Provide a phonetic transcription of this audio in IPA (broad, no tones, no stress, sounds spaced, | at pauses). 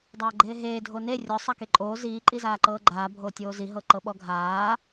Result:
dˤ aː ɡ͡ǃ eː ɦ eː dʱ o n e rʲ ɔ sˤ a k e ǃʼ oː z iː ǃʼ i z aː ǃ ɤː ɡ͡ǃ aː bʱ oː tʲ oː z i ɦ ɤ ǃ ɤ ɓ ɔ ɡʱ aː